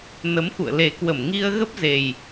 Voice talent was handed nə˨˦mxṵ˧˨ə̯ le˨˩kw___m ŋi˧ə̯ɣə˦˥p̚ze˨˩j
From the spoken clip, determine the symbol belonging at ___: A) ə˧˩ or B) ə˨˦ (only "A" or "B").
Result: A